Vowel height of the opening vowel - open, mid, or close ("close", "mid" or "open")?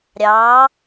open